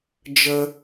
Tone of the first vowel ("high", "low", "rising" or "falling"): high